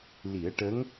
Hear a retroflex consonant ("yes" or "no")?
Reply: yes